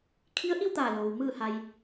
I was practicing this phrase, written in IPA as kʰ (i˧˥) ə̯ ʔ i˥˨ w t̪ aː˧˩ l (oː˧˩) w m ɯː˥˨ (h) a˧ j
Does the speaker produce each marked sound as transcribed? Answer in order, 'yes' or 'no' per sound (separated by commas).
yes, no, yes